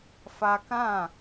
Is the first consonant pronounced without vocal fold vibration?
yes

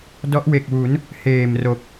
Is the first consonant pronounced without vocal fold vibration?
no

